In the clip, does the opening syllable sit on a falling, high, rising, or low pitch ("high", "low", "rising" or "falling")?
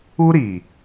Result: high